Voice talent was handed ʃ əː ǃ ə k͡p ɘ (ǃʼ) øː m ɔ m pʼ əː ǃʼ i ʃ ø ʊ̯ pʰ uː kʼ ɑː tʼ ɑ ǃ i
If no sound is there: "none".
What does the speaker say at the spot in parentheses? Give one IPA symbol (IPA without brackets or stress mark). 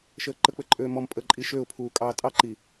ǃʼ